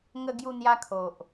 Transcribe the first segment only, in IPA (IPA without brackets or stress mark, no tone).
ŋ